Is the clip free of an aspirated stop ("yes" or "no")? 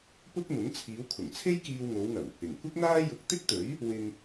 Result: no